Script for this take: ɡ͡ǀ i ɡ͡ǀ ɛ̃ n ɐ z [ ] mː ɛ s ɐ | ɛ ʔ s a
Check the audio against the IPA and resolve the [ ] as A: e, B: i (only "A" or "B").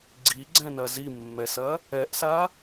B